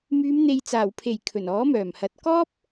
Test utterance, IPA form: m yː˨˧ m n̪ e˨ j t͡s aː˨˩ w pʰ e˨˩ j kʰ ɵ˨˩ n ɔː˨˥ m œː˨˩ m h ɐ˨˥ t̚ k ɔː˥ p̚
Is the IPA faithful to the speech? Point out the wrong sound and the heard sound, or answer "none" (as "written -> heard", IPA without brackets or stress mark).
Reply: none